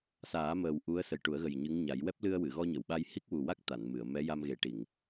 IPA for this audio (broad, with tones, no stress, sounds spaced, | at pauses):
s aː˨˩˦ m əː˨˩ w ʔ u˧˥ ə̯ s ə˨˩ j ʈ u˨˩˦ ə̯ ɣ ə˨˩ j ɲ ɨ˧˥ ŋ ɲ a˨˩˦ j w ɛ˦˥ p̚ l ɨ˧ ə̯ w ɨ˨˩˨ ɣ ɔ˧ ɲ ə˨˩˨ w ɓ a˧ j h i˦˥ k̚ w u˨˩ w a˦˥ k̚ t̪ a˨˩˨ n m ɨ˨˩˨ ə̯ m ɛ˧˥ j a˧ m ɣ e˨˩˦ ʈ i˨˩˨ ŋ